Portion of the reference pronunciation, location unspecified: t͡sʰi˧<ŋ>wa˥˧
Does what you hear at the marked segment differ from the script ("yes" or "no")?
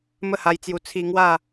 no